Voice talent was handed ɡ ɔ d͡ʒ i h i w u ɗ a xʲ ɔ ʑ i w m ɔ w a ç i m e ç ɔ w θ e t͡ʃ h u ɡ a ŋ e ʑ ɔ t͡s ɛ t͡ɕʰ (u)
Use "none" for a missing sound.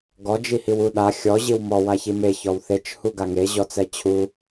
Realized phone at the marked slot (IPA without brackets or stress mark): u